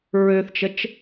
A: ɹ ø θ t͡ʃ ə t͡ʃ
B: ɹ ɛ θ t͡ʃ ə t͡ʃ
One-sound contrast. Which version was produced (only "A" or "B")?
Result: A